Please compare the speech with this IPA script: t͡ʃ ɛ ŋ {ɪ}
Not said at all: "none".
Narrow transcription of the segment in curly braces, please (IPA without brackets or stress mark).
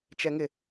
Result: ɪ